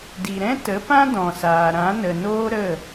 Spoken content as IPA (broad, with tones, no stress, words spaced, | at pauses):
di˨ɾɛ̃˦ tə˨˦pã˦ dɔ̃˨saː˨ ɾã˨˦nə˨noː˦ ɾə˦˨